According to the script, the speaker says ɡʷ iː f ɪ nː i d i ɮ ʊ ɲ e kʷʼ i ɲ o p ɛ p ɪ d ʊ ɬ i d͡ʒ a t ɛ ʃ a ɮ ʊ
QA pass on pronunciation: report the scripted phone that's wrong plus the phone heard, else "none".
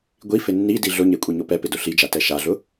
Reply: iː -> i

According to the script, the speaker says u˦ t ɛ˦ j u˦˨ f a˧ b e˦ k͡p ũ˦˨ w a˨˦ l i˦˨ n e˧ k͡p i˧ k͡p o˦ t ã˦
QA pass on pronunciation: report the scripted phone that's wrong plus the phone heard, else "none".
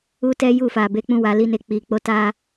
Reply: ã˦ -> a˦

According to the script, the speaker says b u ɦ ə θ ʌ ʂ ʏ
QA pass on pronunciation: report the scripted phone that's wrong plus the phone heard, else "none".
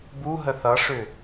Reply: none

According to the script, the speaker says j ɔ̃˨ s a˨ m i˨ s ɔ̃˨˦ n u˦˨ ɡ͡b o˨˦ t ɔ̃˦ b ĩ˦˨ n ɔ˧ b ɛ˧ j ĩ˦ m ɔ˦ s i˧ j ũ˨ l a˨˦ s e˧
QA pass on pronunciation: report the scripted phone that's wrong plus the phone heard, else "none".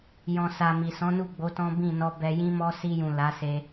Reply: none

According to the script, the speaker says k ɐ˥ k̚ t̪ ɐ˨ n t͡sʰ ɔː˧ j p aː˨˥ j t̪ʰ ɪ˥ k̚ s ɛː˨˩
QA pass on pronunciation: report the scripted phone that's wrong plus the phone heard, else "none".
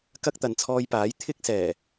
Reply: none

